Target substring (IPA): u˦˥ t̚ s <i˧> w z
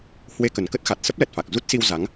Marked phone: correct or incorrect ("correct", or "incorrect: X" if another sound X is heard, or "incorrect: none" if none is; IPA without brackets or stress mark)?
correct